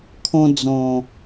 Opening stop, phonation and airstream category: aspirated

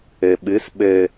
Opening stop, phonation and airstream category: implosive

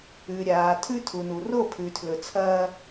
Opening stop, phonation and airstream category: aspirated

